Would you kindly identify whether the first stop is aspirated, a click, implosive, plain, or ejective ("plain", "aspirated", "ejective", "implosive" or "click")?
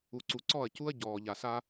click